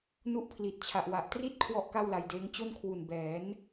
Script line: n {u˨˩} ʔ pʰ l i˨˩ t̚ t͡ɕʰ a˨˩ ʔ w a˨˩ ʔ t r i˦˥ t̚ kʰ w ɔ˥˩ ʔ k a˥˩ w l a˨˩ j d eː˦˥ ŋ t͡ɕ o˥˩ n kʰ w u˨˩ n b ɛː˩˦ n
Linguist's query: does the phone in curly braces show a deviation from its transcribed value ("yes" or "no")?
yes